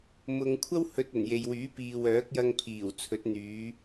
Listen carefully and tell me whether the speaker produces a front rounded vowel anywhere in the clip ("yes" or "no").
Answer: yes